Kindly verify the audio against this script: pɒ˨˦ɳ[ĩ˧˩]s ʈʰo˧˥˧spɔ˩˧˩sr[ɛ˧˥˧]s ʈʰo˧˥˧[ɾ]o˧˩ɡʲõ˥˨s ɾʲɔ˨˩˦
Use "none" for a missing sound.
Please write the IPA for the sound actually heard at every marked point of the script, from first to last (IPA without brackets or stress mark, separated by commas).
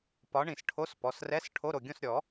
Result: ĩ˧˩, ɛ˧˥˧, ɾ